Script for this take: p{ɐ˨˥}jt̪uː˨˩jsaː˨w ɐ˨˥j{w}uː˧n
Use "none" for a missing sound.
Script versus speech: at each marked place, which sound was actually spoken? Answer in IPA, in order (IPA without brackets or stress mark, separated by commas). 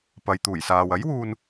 ɐ˨, w